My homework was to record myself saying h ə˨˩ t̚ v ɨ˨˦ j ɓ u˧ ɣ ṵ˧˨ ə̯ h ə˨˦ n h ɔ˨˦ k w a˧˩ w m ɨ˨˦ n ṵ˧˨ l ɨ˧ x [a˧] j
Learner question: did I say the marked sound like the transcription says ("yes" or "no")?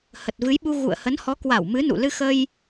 no